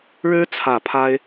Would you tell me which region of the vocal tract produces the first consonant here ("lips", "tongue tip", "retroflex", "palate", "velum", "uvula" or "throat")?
retroflex